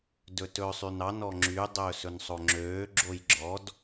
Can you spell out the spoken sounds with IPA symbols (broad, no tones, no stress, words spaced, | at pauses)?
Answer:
dɵtɵːsˤynɑ nɔŋ͡ǁy dˤɵːsɵnsˤoŋ͡ǁøː ɡ͡ǁojɡ͡ǁɔd